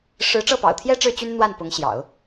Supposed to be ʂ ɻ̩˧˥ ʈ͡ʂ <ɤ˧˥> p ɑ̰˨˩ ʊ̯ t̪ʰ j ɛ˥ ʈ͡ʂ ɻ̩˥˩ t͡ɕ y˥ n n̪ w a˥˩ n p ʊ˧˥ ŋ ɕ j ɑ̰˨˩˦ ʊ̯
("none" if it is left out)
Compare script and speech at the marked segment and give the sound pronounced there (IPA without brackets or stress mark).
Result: ɤ˥˩